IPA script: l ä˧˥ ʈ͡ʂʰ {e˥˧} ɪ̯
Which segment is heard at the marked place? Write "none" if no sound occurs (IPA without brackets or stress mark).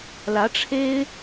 e˥